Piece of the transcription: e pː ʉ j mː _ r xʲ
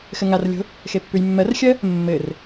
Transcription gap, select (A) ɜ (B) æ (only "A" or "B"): A